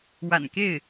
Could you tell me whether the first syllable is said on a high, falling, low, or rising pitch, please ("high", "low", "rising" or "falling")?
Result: low